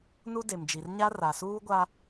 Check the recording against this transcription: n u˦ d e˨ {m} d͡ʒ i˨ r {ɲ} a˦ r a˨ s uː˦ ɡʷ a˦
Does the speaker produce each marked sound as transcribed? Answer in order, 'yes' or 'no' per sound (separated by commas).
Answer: yes, yes